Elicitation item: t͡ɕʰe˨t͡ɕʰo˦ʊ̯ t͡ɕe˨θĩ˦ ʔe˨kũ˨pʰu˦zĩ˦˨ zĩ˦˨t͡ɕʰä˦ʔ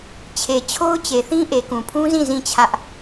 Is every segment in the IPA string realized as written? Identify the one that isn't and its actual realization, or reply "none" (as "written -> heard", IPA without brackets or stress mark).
u˦ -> ũ˦